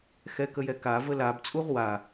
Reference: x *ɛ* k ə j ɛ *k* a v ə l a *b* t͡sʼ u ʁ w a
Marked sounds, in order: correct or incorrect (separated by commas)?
correct, correct, correct